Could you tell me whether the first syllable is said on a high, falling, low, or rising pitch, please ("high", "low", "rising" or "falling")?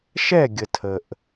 falling